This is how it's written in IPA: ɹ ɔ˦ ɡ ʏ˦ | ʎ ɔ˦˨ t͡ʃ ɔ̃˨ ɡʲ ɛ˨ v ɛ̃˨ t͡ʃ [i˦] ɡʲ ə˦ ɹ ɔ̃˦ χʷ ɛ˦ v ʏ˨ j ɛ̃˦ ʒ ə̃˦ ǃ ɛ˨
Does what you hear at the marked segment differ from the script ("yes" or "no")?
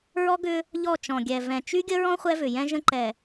yes